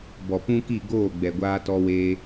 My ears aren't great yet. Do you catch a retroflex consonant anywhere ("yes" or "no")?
no